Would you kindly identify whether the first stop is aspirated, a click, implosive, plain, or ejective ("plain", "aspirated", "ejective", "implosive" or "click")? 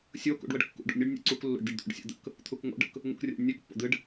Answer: plain